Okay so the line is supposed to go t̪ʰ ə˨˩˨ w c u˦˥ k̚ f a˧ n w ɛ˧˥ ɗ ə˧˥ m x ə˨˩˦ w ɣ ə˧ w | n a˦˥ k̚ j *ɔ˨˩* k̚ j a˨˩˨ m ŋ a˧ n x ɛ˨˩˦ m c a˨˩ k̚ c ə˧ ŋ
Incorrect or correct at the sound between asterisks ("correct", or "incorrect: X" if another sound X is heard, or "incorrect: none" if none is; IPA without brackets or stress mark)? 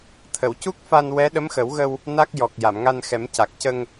correct